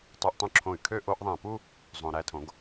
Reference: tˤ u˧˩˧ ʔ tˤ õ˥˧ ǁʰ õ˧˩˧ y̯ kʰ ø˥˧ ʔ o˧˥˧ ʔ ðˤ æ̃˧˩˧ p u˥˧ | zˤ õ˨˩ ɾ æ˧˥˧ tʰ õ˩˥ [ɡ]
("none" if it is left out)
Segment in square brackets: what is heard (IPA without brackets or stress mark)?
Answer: ɡ